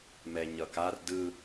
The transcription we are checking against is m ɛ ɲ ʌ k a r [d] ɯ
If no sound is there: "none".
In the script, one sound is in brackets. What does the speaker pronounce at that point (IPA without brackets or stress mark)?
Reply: d